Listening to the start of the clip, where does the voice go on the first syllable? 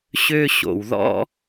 high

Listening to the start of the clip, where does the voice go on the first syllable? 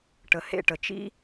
low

